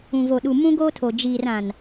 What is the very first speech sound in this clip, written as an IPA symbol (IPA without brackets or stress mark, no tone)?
ũ